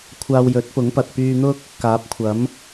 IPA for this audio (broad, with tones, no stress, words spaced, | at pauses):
kʷʰaː˧wjɵ˨˥t̚pʊ˨˥ŋpɐ˨t̚ pyː˧n̪ʊ˥k̚ | kaː˨˥p̚kʷʰɐ˨˥m